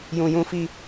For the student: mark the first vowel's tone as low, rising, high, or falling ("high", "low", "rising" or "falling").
low